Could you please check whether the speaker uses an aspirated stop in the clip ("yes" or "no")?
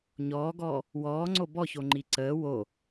no